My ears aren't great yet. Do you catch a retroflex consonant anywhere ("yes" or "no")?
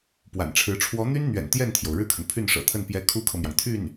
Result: yes